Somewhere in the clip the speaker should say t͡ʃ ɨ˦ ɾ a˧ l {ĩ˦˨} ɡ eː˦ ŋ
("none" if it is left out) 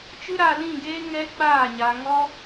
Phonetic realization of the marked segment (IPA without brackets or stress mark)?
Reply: ĩ˦˨